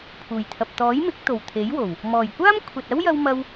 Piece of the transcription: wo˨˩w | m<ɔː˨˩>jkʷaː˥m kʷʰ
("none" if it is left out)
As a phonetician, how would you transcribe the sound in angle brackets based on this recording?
ɔː˨˩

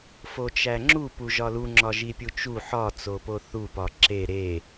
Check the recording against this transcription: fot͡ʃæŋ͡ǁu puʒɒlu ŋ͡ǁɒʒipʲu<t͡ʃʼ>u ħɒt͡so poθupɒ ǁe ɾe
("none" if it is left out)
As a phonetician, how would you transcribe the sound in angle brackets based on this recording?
t͡ʃ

